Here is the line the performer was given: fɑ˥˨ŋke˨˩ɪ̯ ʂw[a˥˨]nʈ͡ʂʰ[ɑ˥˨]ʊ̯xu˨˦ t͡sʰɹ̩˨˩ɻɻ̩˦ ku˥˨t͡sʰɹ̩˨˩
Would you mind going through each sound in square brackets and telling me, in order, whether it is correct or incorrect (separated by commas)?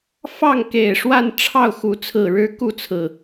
correct, correct